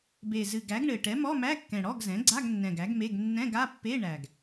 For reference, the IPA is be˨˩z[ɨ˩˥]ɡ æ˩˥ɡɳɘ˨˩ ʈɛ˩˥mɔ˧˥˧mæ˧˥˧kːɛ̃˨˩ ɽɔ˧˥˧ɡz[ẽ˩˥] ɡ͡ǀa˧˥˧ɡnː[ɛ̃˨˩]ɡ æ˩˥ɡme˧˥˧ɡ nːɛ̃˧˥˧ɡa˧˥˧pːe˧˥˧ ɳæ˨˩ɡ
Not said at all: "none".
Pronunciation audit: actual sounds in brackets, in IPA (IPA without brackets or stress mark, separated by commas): ɨ˨˩, ɛ̃˩˥, ɛ̃˨˩